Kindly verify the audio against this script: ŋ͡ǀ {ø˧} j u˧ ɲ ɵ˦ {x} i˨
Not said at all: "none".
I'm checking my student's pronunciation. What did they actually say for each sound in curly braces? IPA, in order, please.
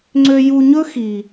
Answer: ø˧, x

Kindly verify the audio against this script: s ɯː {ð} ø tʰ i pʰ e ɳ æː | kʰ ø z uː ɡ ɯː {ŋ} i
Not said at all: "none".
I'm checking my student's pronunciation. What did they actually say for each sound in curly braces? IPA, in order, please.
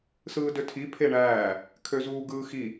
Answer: d, x

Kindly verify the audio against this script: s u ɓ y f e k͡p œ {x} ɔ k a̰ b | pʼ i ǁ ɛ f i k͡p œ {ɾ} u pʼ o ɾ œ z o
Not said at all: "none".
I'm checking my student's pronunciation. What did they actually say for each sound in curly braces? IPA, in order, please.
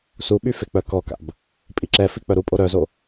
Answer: k, ɾ

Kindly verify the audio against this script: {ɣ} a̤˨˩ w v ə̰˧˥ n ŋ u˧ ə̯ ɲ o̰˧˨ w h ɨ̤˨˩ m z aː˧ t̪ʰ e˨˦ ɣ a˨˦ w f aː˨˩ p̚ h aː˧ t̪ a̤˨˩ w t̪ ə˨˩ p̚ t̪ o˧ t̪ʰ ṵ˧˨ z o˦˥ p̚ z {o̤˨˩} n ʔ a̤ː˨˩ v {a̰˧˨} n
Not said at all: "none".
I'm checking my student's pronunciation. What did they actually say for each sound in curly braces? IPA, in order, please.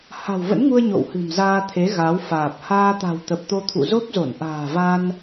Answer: h, o˧˩, a˧

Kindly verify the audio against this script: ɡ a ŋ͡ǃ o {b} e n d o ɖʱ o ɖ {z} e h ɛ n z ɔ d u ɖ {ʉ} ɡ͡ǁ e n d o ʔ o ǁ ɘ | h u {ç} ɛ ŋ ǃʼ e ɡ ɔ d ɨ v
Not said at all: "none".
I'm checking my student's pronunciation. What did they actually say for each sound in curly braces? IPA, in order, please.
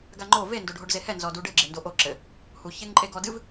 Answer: v, z, ɘ, ç

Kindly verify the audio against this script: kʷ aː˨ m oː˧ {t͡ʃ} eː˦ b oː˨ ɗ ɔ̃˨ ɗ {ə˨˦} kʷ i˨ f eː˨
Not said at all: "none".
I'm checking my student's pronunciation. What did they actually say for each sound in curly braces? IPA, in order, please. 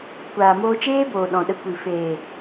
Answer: t͡ʃ, ə˧

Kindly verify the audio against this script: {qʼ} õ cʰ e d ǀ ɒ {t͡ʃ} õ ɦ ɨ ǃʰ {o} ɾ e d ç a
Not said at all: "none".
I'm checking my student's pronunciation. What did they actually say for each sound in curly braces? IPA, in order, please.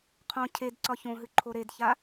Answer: qʰ, ç, o

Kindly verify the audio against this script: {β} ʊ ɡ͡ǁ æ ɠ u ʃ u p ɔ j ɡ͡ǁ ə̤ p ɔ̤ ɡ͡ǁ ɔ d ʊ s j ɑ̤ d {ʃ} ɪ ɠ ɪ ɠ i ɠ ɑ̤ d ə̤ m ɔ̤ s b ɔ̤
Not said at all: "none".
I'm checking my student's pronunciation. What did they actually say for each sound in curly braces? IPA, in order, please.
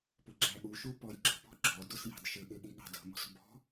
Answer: p, ʃ

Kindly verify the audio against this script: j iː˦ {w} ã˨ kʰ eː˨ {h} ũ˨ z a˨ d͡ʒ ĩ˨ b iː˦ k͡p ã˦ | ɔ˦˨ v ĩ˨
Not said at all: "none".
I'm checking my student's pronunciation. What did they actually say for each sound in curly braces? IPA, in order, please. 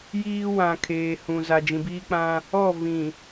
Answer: w, h

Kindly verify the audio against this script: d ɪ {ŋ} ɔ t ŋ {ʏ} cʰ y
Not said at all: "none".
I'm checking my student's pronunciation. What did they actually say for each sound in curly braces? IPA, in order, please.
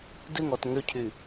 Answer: ŋ, ʏ

